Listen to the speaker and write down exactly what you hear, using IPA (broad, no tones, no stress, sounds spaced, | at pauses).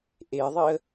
ʔ e ðˤ i ə̯